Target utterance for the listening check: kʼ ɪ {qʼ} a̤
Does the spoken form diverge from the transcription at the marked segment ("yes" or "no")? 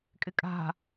yes